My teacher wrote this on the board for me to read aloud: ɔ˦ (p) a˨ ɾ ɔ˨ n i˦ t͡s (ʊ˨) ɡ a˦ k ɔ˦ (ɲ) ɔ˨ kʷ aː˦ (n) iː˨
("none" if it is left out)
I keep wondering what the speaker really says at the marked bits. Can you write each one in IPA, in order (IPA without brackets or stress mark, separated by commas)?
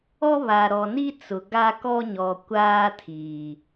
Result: β, ʊ˨, ɲ, tʰ